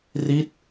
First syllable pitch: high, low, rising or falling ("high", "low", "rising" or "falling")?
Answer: falling